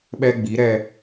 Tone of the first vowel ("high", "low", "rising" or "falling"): high